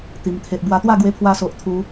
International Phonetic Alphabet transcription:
t̪i˨˩mt̪ʰe˨ʔbwa˧ t̪wa˥˧ɡwe˧pʰwa˧so˨ʔ t̪ʰu˧

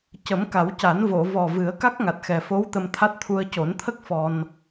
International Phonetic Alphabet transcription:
cə˨˩˦mka˨˩˦wca˨˩˦n vo˨˩˨vɔ˨˩ vɨ˨˩˦ə̯ka˦˥k̚ŋa˨˩t̚ xɛ˨˩fo˧˥w t̪ə˧mt̪ʰa˦˥t̚t̪ʰu˧ə̯ co˨˩˦nt̪ʰə˦˥k̚ fɔ˧n

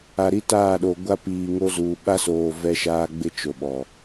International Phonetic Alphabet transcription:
a˨ɾi˦taː˦˨ɗo˨ ɡʷa˦piː˨ŋo˦zuː˨ ɓa˦soː˨ vɛ˦ʃaː˦ɡ͡bɪ˦ t͡ʃo˨ɓɔ˨

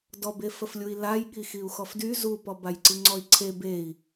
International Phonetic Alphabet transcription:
dɔbe fəflʲui̯laj ɠixiu̯xɔfdy zupɔ bajǀiŋ͡ǀɔi̯ǀʰe bei̯

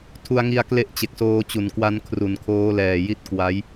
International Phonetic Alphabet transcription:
tʰu˧a̯ŋi˧a̯ kle˥˩ʔ t͡ɕe˨˩k̚soː˧t͡ɕu˩˦n kwa˧n kʰru˩˦nkʰoː˦˥lɛː˨˩ ji˦˥t̚ kwa˦˥j

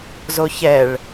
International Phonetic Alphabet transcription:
zoçɛɭ

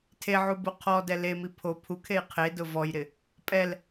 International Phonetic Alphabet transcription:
tʰeʕubu qʰɔdɛ lemi pʰo pʰukʰej qʰedʊ vɔjɾɪ | pʼɛl

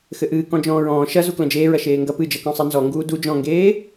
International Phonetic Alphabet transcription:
xɘʔɨː kɔ̃d͡ʒɔ̃ːɹɔ̃ː ʃɐ zuklɐ̃d͡ʒeːɹɐ ʃeːŋɡɐ pɨd͡ʒɐkɔ̃ sˤenzɔŋɡuː du d͡ʒɔ̃ŋɡeː

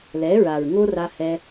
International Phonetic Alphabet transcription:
lɛ˨˦ɹa˨ɹ ŋo˦ra˧hɛ˧

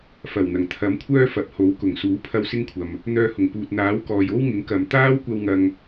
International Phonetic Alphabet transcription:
fɐ˨˩wn̪ɐ˨˩ŋ t̪ʰɐ˨˥mkʷʰœː˥ fɐ˨p̚ho˨˥w kʊ˨˩ŋsuː˨˥pʰɐ˧w sɪ˥ŋkʷʰɐ˨m | n̪œː˧hʊ˨˩ŋpuː˨t̚ n̪aː˨˥w kɔː˨jo˥wŋɪ˨˥ŋ kɐ˨m t̪aː˥wkʷɐ˧w ŋɐ˧ŋ

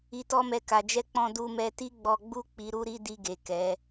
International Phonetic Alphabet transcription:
i˧tɔ˦mɛ˧ ka˨d͡ʒɛ˧k͡pɔ̃˧ du˧mɛ˧ti˦ ɡ͡bɔ˧ɡ͡bu˦ k͡pi˧ɾu˦ɾi˦di˧ ɡe˨kɛ˨˦

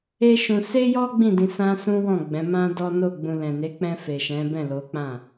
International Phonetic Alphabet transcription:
e˦ʃũ˧ se˦jɔ˦ ɡ͡bĩ˦˨dĩ˧ sã˦sũ˦wɔ̃˦˨ɡ͡bɛ̃˨˦ mã˦dɔ˦ no˦˨ ɡ͡bũ˧ lɛ̃˨ne˨˦k͡pɛ̃˧fe˨ ʃɛ̃˨˦bɛ̃˦˨lo˨˦k͡pã˦˨

